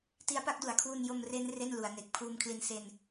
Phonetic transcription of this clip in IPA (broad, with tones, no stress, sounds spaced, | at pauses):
t i˦˥ a̯ p a˦˥ k̚ d u˩˦ a̯ kʰ w u˧ n j o˧ m r e˦˥ n r e˥˩ n l u˩˦ a̯ n e˨˩ k̚ pʰ uː˧ m kʰ l i˧ n s e˧ n